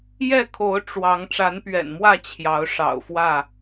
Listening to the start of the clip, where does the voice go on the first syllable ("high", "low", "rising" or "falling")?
falling